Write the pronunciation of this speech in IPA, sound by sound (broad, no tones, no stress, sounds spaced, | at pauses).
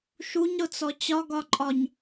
ʃ u ɲ ɾ ʊ t͡s ɔ t͡ɕ ɒ ɡ ɒ ǃʼ ɒ ɲ